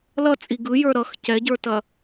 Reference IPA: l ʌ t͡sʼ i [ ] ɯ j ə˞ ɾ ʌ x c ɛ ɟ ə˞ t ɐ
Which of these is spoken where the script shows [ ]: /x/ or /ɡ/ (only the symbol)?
ɡ